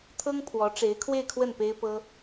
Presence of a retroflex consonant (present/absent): present